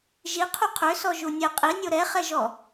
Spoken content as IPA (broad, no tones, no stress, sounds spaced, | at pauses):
ʒ i qʰ u qʰ ø s ɔ ʒ u nʲ e qʼ i nʲ o ɾ ɛ χ ɛ ʒ ɔ